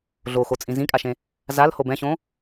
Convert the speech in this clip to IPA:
ɮ o x o t͡sʼ ĩ z ĩ kʼ a ʃ ẽ | z a l h o b ɛ̃ ɕ õ

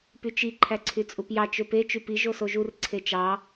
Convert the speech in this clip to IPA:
p y t͡ʃ i ǃʰ æ ǀʰ y t͡sʼ u p j ɑ t͡ʃ ø p e t͡ʃ y p i ʒ o s o ʒ u r ǀʰ e t͡ʃ ɑ

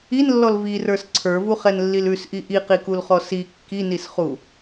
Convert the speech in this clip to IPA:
i n lː ɔ l v i r ə˞ s ǀʰ ə˞ v u χ ɛ n lː i l ʉ s ʔ i ʔ i q i k u l χ ɔ s i kː i n i s χ u

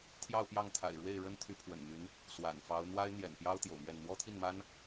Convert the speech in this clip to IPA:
t̪ʰ j ɑ˥˧ ʊ̯ p j ɑ˥˩ ŋ t̪ʰ a̰˨˩ ɪ̯ ɻ w e˥˩ ɪ̯ ɻ ə˥ n t̪ʰ y˧˥ pʰ w ə̰˨˩ n m y˧˥ n | s w a̰˨˩ n f ɑ˧˥ ʊ̯ n̪ w a˥ ɪ̯ n̪ j ɛ̰˨˩ n p j ɑ˥ ʊ̯ t̪ j o̰˨˩ ʊ̯ m ɥ ɛ˥˩ n n̪ w ɔ˥ t̪ʰ i˥˩ n m a˥ n

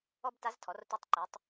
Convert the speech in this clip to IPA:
ɔ˥ b t a˧˥ z tʰ ɔ˩˧ r t ʊ˧˥ tˤ ǃ e˩˧ tˤ

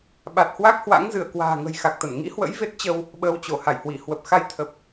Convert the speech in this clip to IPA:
ɓ a˨˩ t̚ h w a˦˥ k̚ h w a̰˧˥ ŋ z ɨ˧˩ ə̯ k w a̤ː˨˩ ŋ ə̤˨˩ j x a˨˩ k̚ t̪ ə˧˩ n ŋ ḭ˧˥ h w ə̰˧˥ j v e˦˥ t̚ t͡ɕ ə˧ w | ɓ əː˧ w t͡ɕ o˧˩ h a˧˩ j h w i˧˩ h w ə˨˩ p̚ x a˧ j t̪ʰ ə˨˩ p̚

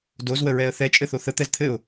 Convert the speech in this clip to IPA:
d o z w ə ɹ ɛ ə̯ θ ɛ t͡ʃʼ ɘ θ o θ ə t̪ ɛ z t̪ʰ ɘ ʊ̯

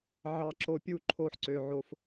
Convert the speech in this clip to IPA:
ʕ ɑ˨ ǁ o˨ pʲ u˦˨ ǃʰ o˦ ħ ǀ ø˨ ʕ o˦ f

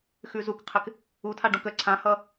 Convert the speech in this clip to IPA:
x ʉ z u k qʰ ɪ k | u tʰ a ɖ õ k ə ǀʰ ã h ʌ

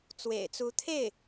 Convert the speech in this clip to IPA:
t͡s w ḛ˨˩ ɪ̯ t͡s u˧˥ t̪ʰ e˥˩ ɪ̯

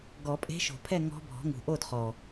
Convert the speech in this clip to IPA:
ɡ ɔ˨˩˦ pʼ e̤˧˥ ʃ o̤˨˩ pʰ ɛ˥˨ ŋ ɔ̤˧˥ bʱ ɔ̤˩˥ ŋ ṳ˨˩ ʔ o˥˨ d χ ɔ˨˩

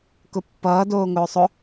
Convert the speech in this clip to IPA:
k ʊ pː ʌː d oː ŋ ʊː sˤ ʊ

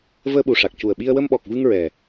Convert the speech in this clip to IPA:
v əː˧ ɓ u˨˩ ʂ a˨˩ k̚ c u˨˩ ə̯ ɓ i˧ ə̯ w ə˧ m ɓ ɔ˨˩ k̚ v ɨ˧ ŋ ɹ ɛ˨˩

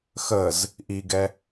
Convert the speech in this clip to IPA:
x ə z | ʔ i ɡ ɛ

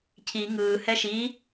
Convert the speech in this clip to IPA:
cʰ i ŋ ɯː h ɛ ʃ i

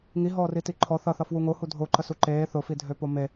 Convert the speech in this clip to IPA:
ŋ i ɦ ɔː r i t i ǃʰ ɔ θ ʌ θ ʌ f w u ŋ o h u dʱ o ǃ ə s u ǃ eː θ ʊ f i dʱ ø p o m e

